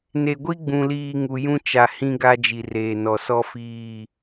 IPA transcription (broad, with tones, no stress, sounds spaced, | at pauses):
n e˨ ɡʷ i˦ ɡ͡b ũ˨ l iː˨ ŋ u˨ j ũ˦ t͡ʃ a˨ h ĩ˦ ɡ a˦ d͡ʒ i˨ r eː˨ n ɔ˨ s ɔ˦ f iː˦˨